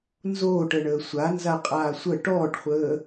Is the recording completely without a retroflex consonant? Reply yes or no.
no